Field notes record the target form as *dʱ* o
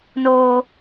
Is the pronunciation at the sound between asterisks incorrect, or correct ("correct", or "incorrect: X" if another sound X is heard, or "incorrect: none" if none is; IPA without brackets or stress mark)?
incorrect: n